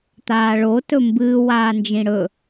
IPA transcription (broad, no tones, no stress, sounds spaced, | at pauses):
t̪ aː ɭ o t ɵ m b ɨː w aː n d͡ʒ ĩ ɽ ɵ